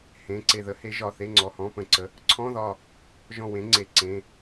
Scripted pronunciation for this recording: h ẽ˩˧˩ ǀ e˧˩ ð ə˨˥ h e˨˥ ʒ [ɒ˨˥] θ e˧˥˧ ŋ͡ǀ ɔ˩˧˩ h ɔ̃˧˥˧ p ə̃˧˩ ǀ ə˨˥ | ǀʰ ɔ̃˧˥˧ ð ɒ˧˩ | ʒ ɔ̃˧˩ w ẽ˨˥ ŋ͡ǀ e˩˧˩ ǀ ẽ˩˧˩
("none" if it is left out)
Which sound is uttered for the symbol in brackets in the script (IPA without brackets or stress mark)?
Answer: ɒ˩˧˩